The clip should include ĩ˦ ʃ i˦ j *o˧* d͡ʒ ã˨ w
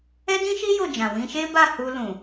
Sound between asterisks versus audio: incorrect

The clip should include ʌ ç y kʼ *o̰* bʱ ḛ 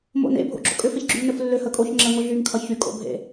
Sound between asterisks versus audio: correct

